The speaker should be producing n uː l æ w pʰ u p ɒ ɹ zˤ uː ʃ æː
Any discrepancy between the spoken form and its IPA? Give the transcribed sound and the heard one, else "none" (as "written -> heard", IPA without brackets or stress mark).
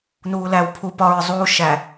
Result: æː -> æ